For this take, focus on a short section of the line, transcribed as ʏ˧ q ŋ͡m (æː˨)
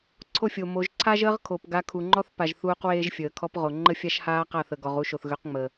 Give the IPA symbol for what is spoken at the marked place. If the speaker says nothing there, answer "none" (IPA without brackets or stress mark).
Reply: əː˨